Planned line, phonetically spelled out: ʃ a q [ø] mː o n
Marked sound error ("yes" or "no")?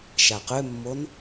no